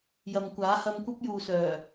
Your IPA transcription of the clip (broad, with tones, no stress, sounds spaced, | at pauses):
j ɐ˨ m kʷ aː˨˥ h ɐ˧ m kʷ ɐ˥ p̚ j uː˨ s œː˨˩